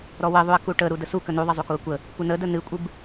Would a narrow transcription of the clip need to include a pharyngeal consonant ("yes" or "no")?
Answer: no